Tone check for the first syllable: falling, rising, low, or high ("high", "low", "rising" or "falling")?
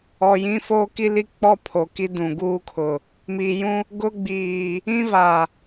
low